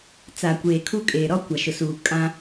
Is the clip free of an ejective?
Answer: no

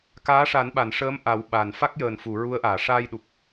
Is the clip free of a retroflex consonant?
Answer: no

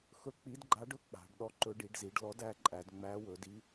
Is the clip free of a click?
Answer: no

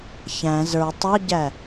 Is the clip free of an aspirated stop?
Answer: yes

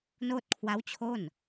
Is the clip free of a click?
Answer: yes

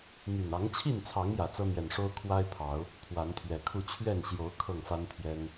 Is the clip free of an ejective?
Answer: yes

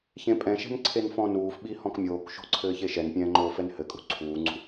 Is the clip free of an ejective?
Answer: no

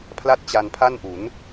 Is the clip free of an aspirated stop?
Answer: no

